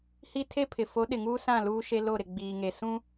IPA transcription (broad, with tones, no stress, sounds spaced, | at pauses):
h i˦ tʰ e˦ pʰ ɪ˨ f o˨˦ ɗ ɪ˨ ŋ uː˦ s ã˦˨ l uː˦ ʃ e˦ l o˦˨ ɾ ɪ˨ ɡ͡b iː˨ ŋ e˨ s ũ˦